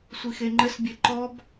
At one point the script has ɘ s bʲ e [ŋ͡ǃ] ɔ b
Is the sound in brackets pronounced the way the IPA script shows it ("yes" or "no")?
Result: no